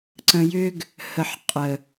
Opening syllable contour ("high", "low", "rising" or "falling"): low